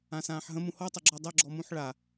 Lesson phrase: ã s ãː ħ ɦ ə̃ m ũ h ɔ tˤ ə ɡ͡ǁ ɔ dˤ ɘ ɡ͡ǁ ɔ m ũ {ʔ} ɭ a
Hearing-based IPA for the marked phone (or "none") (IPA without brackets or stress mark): ħ